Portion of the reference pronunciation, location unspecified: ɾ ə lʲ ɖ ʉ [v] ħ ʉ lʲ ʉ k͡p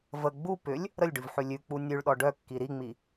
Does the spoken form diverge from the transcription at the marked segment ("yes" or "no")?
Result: no